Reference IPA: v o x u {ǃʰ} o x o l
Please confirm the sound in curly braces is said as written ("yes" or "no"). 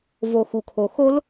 no